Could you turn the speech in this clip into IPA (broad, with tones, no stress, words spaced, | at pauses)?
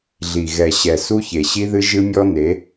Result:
ɮi˨ ɣɛ˨ɕɛ˨ su˦çe˨ɕi˦ðɨ˦ ʒɨ˦mʲɔ˦ne˨˦